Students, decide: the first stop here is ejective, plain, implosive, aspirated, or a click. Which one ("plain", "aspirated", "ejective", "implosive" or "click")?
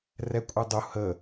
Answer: ejective